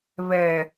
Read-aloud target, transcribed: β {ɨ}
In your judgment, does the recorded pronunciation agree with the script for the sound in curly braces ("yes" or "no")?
no